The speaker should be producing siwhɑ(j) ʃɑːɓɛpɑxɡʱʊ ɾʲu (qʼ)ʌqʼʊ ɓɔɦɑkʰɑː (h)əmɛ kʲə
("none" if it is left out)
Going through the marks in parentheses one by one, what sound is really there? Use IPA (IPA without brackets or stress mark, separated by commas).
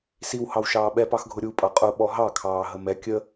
w, pʼ, ɦ